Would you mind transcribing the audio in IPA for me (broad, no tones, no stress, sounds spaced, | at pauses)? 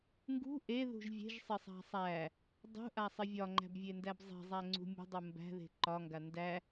ŋ ɡ ṳ ʔ e ð ṳ ʒ vʲ e̤ ʒ sˤ ɪ sˤ a̤ sˤ æ | dˤ ṳ ʔ a sˤ ɪ vʲ ɒ ŋ͡ǃ æ̤ b vʲ e n d æ b zˤ e̤ zˤ æ ŋ͡ǀ ṳ mʲ ṳ dˤ u m b æ̤ ð e̤ ǃ ɒ ŋ ɡ a n d æ